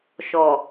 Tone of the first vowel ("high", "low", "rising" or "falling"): low